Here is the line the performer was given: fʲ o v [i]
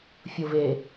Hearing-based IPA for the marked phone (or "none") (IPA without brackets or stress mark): e